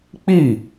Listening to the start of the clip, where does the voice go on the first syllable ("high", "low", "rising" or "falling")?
falling